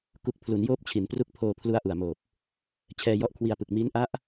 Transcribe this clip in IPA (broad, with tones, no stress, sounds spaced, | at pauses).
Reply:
k u˨˩ k̚ pʰ l u˩˦ n j oː˦˥ p̚ t͡ɕʰ i˩˦ n p r u˦˥ k̚ pʰ oː˧ pʰ l u˦˥ a̯ ʔ u˨˩ a̯ m oː˨˩ p̚ | t͡ɕʰ ɛː˧ j ɔ˦˥ ʔ kʰ w i˧ a̯ p ɯ˨˩ k̚ m i˦˥ n ʔ a˦˥ ʔ